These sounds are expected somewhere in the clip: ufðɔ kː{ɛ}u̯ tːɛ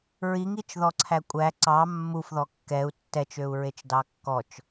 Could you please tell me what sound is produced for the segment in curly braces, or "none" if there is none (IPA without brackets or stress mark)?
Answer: ɛ